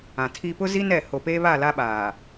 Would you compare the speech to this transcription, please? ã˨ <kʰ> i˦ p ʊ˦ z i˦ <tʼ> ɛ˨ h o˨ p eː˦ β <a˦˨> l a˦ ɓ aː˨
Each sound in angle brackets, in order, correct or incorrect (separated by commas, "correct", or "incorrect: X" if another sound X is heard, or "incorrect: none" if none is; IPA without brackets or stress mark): incorrect: tʰ, incorrect: n, correct